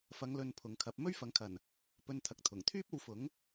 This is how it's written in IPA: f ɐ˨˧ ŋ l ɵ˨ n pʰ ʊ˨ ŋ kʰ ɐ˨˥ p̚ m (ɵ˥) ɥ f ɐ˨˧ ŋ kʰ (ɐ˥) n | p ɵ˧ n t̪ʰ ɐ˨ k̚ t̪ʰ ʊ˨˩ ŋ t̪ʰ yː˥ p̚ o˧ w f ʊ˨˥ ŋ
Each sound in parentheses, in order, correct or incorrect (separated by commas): correct, incorrect